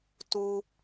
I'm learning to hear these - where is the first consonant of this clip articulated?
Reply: tongue tip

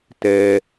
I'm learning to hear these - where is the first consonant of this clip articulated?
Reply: tongue tip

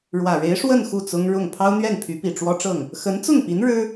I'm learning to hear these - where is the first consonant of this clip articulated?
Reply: retroflex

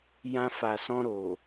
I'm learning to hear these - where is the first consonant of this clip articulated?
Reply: palate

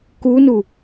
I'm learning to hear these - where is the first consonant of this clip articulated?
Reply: velum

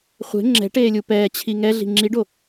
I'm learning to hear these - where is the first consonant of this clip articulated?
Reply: uvula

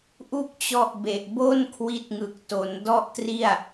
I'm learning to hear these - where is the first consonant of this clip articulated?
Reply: throat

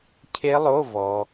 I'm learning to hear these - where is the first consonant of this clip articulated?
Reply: palate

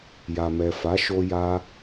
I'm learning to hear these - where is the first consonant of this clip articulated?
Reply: palate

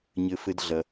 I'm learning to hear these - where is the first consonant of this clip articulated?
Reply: palate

